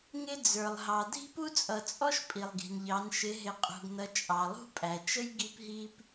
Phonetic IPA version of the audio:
ŋɪ˥d͡zə˞˨lˠɦɑ˨ dʱi̤˥pu˥t͡sʼʌ˨t͡sʼɔ˥ʃ pʼi˨lˠɡi̤˨nʎɑ˨˦n ʃɪ˨˦ɦɪ˨˦qʼṳ˨ɡnʌ˨˦ t͡ʃʼɑ˨lˠṳ˥pʼæ˨ t͡ʃə˥j ɡi˥pɦi˥p

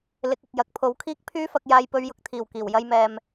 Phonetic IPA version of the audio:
lɪ˨˥k̚ɪ˨k̚jɐ˨k̚ pʰo˨˥wkʰiː˥k̚pʰyː˥fɐ˨˥k̚ jaː˧jpɵ˧ɥjʊ˨˥k̚t̪ʰiː˨˩w kiː˨˩wjɐ˧jmɛː˨m

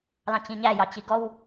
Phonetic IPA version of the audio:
lɑ̃t͡ɕĩɲæ jɑt͡ɕiɡɔw

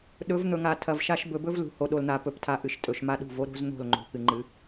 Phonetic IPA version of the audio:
ɗɵ˨˦vn̪ɵ˨ŋa˨ tʰɐ˨vʃa˦ʃ bɵ˨bɵ˦vlṳ˨ ho˨ɗo˨ln̪a˨ pɵ˨ptʰa˨ ʔɨ˨ʃtʼɵ˨ʃma˦ɗṳ˦˨v o˦ɾo̤˦zn̪o̤˦˨l ŋ͡ǃo̤˨kɨ˨ŋ͡ǃɨ˨˦

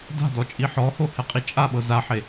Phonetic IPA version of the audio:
da̤dɔt͡ʃʼi ħɔhohɛqʼi t͡ʃʼaɓɤ zaħe

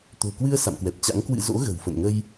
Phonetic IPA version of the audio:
t̪o̤˨˩kwɨ˧ə̯ sa̰˧˨mkwɛ˨˩p̚t͡ɕa̰˧˥ŋ kwɨ̰˧˨ zo̰˧˥ɣə̤˨˩wfə̰˧˨nŋə˧j

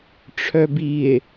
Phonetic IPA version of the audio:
ʈ͡ʂʰœbie̯

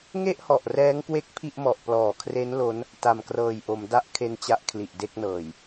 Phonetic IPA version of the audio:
ŋe˥˩ʔhɔ˨˩ʔ rɛː˦˥ŋkwe˦˥k̚ pʰi˥˩ʔmɔ˨˩ʔ plɔː˨˩kʰre˦˥n lo˦˥n | ta˨˩mkrɤː˨˩jʔo˩˦m da˦˥ʔ kʰe˧nt͡ɕa˦˥ʔ kʰli˨˩ʔde˥˩k̚nɤː˨˩j

